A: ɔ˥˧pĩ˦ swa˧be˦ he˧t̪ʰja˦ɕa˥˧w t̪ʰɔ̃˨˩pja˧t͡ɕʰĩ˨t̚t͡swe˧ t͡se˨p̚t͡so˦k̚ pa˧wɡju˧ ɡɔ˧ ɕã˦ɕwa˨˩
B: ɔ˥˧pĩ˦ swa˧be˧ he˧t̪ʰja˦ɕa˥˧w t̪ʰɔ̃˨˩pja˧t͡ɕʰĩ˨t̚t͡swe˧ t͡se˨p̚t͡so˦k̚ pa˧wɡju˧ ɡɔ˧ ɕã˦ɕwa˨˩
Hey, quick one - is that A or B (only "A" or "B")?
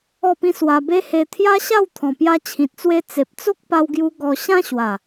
A